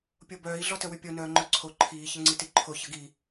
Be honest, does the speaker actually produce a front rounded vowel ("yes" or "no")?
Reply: yes